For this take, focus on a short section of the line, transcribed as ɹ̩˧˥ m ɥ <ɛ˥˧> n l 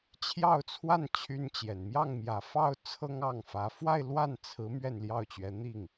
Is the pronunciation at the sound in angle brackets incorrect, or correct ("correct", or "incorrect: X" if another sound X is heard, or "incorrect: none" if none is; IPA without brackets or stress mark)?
correct